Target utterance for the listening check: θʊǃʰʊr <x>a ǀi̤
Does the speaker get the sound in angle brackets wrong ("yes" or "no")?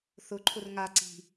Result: yes